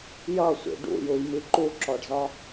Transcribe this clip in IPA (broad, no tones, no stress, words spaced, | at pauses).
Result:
jʌsʷḭ ɖṵjujmi ǃuǁɔɖzɒ